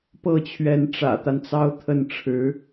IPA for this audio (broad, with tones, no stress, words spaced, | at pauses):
pɤ˥˩t͡ɕʰɥɛ˧˥n ʈ͡ʂä̰˨˩t̪a˦nt͡sɑ˥ʊ̯ t̪ʰə˥˩nʈ͡ʂʰɻ̩˧˥